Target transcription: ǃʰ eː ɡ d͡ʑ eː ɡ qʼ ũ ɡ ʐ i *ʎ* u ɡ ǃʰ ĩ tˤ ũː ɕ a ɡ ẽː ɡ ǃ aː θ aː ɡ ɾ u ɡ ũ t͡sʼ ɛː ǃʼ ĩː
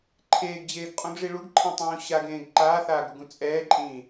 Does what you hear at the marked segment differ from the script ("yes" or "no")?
yes